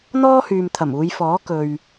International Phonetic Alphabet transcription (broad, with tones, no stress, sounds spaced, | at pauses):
n̪ ɔː˥ h yː˨ m t̪ʰ ɐ˨˩ m uː˨˧ j f ɔː˨˥ k ɵ˨ ɥ